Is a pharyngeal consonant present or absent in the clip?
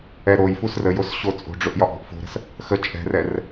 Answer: absent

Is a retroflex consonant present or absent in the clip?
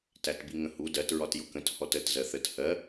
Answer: absent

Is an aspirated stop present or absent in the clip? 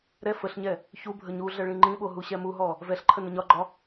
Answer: present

